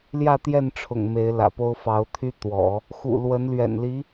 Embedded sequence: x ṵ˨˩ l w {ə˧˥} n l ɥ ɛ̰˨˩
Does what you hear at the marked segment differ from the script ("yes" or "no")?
no